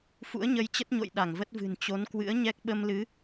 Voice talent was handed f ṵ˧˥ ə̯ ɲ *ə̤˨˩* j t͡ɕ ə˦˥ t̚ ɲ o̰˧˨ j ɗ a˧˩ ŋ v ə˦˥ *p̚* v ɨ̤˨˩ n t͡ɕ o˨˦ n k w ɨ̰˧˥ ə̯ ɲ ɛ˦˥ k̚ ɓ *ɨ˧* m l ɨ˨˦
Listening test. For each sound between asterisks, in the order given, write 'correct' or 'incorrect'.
incorrect, incorrect, incorrect

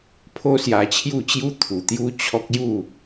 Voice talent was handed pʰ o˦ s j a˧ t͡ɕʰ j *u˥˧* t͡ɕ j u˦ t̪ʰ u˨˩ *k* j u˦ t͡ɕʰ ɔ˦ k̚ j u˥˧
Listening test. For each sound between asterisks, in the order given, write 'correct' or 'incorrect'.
correct, incorrect

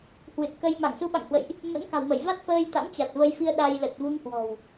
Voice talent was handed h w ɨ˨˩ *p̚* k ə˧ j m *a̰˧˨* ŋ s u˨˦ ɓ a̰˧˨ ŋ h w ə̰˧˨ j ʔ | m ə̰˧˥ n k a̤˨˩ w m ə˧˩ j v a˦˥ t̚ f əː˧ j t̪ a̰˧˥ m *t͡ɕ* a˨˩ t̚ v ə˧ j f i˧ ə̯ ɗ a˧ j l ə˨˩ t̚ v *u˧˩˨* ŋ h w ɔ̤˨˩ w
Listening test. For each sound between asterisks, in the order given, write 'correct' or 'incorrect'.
incorrect, incorrect, correct, incorrect

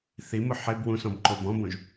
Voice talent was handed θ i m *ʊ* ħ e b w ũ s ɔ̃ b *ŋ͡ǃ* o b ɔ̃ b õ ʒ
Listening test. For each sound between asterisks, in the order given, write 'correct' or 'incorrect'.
correct, incorrect

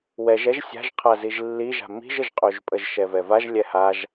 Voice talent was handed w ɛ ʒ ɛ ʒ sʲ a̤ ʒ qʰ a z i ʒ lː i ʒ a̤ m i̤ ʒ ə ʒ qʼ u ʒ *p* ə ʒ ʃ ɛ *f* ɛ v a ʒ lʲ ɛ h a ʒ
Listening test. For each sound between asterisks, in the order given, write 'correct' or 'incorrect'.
incorrect, incorrect

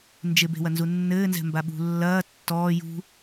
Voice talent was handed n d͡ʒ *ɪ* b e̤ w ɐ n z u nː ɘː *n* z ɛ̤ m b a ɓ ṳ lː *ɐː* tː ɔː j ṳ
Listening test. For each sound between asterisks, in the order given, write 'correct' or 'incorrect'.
correct, correct, correct

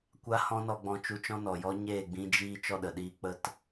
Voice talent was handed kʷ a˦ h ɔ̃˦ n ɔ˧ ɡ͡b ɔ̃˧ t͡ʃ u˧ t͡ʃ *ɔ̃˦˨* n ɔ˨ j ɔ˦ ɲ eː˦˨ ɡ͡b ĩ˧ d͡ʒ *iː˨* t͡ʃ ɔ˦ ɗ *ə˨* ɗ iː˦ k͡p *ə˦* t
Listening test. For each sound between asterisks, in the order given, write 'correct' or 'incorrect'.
incorrect, incorrect, correct, correct

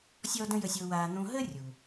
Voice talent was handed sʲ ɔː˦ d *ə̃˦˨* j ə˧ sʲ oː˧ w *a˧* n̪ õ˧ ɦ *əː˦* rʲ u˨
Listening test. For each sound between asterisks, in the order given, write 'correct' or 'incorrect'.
incorrect, incorrect, correct

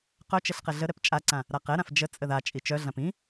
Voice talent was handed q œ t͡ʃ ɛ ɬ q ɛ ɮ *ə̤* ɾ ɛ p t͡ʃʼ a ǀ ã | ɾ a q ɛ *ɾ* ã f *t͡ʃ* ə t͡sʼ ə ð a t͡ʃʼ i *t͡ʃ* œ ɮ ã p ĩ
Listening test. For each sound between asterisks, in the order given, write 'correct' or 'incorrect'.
incorrect, correct, incorrect, correct

